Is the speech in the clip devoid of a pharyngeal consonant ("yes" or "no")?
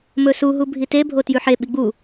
no